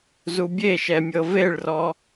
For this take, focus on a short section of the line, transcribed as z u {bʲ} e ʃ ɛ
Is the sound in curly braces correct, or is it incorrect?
correct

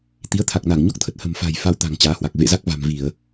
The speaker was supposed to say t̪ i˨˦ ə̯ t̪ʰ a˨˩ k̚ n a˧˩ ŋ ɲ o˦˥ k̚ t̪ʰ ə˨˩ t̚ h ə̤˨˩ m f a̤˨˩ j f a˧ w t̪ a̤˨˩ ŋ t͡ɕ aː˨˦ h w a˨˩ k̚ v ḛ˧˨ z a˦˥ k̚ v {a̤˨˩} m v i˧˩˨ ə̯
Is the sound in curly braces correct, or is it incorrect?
correct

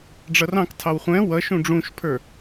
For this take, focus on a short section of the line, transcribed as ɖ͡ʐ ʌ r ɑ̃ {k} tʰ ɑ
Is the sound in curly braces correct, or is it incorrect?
correct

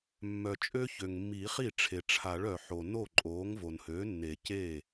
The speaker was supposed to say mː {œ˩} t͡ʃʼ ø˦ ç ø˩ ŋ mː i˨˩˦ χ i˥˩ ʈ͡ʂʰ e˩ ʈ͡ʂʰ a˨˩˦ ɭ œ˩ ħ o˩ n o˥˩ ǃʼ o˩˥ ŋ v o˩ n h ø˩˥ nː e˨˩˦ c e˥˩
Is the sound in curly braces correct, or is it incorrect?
correct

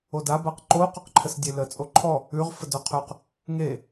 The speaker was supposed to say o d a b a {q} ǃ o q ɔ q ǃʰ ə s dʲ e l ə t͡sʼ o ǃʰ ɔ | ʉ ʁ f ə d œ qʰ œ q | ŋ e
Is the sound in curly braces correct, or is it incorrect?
correct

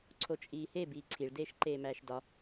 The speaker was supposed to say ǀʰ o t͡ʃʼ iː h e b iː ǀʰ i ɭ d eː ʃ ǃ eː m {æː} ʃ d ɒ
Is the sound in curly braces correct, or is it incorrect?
correct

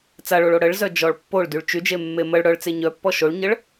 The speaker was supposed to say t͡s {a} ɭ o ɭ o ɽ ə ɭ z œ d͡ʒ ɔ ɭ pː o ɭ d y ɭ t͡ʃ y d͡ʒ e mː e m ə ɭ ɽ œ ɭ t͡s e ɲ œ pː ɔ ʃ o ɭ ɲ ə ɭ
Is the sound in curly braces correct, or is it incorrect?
correct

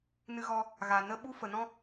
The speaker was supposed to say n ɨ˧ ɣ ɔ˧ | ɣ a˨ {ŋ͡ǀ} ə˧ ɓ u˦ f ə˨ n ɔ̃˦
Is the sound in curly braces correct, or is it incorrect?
incorrect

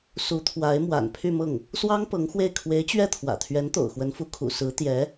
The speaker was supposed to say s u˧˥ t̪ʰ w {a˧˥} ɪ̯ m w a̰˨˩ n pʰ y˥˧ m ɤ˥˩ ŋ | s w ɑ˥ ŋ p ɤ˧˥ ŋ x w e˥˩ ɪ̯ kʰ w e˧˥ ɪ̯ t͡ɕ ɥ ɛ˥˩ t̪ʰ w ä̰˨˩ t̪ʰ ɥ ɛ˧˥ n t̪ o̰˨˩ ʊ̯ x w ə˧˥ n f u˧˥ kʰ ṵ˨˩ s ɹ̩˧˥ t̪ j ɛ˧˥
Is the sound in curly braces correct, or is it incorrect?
correct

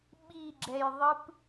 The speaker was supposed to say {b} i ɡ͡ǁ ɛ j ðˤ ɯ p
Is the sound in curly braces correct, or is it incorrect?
incorrect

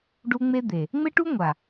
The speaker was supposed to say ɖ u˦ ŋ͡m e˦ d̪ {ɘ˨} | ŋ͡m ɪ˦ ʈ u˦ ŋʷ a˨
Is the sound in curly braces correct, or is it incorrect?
incorrect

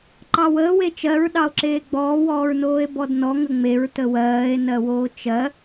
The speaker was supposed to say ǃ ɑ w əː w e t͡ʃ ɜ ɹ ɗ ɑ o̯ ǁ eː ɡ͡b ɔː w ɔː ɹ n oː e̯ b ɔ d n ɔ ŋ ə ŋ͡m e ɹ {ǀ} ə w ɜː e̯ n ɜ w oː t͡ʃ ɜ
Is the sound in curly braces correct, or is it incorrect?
incorrect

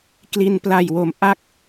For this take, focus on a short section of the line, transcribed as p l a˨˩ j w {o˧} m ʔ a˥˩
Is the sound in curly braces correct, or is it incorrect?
incorrect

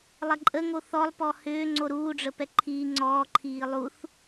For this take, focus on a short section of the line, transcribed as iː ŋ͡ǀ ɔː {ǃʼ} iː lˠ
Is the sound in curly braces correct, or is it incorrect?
incorrect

